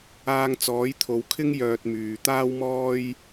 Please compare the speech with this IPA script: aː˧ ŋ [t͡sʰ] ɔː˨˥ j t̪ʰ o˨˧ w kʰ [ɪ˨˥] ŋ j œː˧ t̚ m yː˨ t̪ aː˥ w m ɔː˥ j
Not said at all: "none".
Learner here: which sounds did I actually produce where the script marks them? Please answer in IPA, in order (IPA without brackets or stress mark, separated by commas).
t͡s, ɪ˥